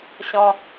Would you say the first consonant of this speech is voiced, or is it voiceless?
voiceless